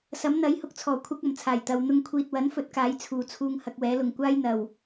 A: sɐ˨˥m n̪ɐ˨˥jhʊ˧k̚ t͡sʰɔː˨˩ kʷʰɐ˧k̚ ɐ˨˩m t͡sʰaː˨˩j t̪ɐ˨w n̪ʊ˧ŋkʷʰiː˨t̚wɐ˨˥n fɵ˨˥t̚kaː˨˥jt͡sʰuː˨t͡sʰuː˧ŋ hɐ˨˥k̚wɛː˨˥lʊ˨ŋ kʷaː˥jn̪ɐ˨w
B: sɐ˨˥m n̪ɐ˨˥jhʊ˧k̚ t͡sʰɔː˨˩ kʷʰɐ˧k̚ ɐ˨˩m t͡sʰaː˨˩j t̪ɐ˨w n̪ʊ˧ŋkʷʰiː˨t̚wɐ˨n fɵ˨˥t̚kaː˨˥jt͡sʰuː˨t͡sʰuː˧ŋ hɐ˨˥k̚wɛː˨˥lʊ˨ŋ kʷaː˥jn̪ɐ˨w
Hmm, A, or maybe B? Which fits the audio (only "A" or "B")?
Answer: A